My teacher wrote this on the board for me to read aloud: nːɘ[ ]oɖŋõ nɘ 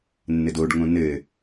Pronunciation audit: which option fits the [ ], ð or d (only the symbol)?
d